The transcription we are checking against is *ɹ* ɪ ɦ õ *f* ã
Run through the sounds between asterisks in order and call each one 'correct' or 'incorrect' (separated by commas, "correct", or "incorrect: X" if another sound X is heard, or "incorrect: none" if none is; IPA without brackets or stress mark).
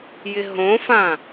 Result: incorrect: j, correct